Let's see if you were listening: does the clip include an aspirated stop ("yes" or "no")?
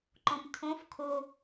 yes